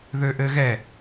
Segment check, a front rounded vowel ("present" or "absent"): present